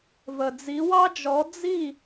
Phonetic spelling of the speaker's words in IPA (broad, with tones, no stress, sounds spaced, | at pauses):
v ə˩ d͡z i˩˥ w ɑ˥ d͡ʒ ɔ˩˥ d͡z i˥˩